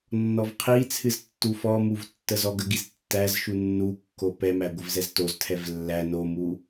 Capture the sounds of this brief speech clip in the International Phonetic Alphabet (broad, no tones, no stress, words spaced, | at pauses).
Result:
nːɔvqʰit͡sʰɨz tːufɔmuv tːəzɔɡəɡiz tːæzʃu nːukːo pɛmæ ɡʷəvzɛztoztʰɛv lːæ nomu